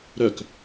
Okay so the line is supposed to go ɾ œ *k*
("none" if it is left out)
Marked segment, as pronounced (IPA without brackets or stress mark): k